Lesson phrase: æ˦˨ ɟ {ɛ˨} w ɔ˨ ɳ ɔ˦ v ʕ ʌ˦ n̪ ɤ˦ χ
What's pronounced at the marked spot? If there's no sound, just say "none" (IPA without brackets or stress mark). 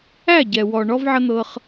ɛ˨